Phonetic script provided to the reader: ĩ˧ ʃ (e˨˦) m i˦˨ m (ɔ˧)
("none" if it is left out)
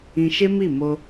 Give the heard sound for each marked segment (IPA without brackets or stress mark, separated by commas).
e˦, o˧